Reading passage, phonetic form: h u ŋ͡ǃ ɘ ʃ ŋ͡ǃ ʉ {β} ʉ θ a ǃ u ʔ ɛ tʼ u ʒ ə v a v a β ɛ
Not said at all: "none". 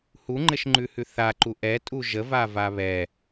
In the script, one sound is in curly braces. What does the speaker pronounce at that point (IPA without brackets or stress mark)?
h